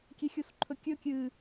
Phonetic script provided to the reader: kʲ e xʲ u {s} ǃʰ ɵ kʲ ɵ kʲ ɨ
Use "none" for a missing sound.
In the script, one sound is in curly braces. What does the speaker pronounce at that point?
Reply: s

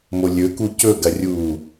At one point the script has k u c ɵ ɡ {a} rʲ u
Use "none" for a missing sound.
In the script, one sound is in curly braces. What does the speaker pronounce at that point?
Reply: ɐ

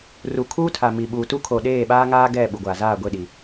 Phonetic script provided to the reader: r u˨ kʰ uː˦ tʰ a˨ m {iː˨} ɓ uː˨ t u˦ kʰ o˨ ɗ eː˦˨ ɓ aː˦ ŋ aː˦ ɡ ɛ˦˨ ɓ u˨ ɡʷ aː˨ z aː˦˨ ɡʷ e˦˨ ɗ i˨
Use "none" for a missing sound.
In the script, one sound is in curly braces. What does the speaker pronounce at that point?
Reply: i˨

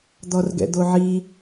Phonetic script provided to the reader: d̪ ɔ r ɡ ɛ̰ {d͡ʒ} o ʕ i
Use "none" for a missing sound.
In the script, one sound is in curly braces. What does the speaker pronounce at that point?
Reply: d̪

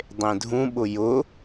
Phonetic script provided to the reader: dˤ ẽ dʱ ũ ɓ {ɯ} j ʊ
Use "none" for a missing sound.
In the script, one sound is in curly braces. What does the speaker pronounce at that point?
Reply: ʊ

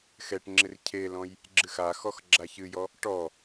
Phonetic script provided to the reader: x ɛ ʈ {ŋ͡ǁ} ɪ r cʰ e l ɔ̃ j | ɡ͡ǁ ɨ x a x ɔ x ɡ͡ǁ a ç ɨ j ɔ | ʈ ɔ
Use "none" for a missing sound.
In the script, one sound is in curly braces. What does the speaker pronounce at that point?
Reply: ŋ͡ǁ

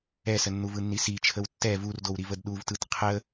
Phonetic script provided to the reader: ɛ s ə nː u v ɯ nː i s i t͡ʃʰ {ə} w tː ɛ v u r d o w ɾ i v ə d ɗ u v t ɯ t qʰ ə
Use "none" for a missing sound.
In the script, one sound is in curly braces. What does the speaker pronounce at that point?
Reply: ə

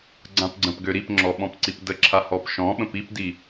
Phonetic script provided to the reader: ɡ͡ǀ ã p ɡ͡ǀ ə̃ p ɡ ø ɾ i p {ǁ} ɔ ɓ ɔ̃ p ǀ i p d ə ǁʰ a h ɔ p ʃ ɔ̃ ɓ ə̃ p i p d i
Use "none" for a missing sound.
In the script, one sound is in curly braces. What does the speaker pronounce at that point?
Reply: ŋ͡ǁ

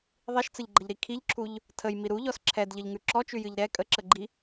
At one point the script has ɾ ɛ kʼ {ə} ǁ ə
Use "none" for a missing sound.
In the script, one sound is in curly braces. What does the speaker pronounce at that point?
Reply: ə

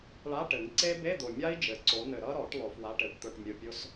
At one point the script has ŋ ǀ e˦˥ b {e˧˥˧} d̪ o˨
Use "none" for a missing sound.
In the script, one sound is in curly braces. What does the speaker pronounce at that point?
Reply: e˧˥˧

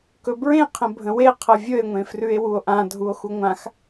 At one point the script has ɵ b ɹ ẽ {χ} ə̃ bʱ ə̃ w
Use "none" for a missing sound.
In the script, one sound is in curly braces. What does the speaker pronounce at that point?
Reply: qʰ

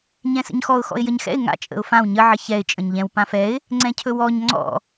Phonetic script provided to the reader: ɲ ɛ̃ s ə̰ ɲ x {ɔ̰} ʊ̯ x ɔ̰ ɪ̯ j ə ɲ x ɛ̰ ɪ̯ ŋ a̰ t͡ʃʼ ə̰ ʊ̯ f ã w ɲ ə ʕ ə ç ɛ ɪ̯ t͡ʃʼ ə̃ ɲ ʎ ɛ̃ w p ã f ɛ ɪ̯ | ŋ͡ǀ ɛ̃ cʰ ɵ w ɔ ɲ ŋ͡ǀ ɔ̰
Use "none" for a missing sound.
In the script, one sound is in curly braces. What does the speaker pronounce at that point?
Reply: ɔ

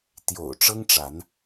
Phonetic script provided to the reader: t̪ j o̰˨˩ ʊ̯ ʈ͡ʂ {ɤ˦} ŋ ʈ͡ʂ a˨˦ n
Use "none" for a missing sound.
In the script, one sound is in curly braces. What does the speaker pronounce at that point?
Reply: ɤ˦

